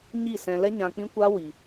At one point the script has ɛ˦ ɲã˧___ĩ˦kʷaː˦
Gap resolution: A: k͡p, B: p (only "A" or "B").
A